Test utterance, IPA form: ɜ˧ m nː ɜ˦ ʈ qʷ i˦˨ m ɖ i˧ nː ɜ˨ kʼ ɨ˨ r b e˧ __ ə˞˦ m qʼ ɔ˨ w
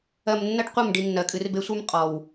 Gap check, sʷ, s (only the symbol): sʷ